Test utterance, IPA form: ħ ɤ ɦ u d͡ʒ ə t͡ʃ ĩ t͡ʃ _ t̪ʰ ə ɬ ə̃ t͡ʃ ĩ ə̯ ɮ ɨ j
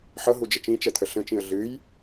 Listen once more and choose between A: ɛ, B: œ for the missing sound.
A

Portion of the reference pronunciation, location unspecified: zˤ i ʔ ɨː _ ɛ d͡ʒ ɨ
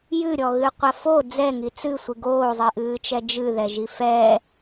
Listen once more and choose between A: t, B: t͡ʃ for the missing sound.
B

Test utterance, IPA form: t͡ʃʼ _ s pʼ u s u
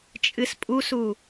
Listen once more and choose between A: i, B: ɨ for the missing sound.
B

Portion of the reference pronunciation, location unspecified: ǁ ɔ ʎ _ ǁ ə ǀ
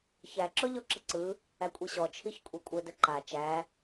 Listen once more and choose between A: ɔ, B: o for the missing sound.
A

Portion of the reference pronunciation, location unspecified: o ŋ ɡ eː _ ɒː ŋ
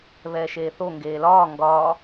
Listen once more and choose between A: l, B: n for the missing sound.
A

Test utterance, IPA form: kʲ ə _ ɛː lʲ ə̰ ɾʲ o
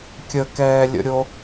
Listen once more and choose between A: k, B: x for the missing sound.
A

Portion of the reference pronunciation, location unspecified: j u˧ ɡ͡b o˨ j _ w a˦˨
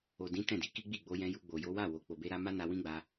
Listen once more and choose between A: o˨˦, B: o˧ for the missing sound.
A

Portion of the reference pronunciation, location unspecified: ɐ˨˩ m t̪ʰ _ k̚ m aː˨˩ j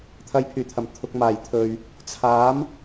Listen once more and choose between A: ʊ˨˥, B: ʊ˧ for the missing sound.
B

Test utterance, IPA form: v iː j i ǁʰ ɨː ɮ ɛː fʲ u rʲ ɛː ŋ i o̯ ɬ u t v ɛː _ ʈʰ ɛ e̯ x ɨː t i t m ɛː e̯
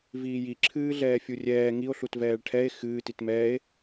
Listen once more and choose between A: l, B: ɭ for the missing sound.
B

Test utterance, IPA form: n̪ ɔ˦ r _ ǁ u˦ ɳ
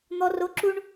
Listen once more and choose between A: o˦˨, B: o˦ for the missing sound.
B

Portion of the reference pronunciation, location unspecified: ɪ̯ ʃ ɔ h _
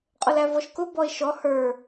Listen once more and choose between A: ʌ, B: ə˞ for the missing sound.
B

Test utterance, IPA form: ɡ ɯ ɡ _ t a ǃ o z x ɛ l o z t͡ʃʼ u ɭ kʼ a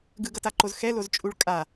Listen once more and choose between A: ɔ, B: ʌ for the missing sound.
B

